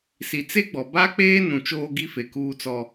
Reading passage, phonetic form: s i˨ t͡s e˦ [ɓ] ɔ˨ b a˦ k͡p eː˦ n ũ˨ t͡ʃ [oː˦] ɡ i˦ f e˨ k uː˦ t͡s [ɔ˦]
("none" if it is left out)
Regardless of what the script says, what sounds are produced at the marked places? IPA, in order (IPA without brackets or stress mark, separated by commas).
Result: ɡ͡b, oː˦, ɔ˦